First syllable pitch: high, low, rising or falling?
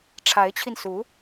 rising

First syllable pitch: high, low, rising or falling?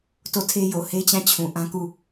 falling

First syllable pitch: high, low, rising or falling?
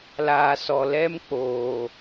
low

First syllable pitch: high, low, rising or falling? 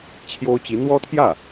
high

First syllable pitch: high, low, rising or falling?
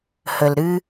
low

